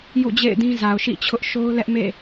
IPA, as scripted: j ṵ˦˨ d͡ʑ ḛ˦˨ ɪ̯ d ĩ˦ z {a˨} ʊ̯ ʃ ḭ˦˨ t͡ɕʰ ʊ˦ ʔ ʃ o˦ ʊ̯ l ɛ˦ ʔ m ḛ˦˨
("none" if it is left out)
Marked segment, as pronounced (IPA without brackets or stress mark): a˨